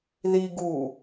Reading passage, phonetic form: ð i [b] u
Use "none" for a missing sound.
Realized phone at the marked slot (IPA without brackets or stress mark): ɡ